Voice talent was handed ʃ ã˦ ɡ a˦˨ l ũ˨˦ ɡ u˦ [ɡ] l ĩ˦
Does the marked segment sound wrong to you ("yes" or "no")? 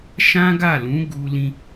yes